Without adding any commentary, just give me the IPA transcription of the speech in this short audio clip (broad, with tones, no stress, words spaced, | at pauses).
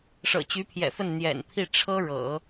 ʂɤ̰˨˩t͡ɕy˧˥pʰjɛ̰˨˩fə˥˩n n̪jɛ̰˨˩npʰi˥˩ ʈ͡ʂʰɤ˥ ɻɤ̰˨˩˦